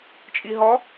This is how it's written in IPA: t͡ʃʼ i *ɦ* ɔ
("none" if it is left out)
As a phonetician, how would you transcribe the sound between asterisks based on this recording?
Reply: ɦ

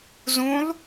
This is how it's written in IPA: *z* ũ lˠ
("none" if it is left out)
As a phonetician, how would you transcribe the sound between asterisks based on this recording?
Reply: z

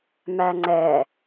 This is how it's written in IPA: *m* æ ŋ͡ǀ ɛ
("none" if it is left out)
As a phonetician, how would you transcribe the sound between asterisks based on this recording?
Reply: m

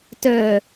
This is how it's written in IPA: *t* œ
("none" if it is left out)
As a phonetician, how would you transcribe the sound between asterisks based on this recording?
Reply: t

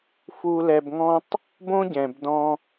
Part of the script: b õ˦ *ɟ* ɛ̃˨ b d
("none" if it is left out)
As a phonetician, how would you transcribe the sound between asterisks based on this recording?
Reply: ɟ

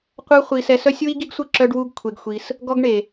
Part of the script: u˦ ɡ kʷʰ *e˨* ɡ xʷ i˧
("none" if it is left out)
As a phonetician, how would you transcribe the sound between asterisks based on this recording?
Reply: e˧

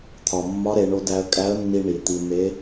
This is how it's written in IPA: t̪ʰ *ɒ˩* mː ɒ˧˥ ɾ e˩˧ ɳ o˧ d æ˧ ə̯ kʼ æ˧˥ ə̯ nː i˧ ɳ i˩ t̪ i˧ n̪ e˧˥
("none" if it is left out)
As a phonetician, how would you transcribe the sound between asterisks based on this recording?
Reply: ɒ˩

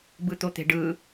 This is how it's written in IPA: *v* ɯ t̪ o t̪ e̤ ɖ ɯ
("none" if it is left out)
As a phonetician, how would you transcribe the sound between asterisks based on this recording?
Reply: b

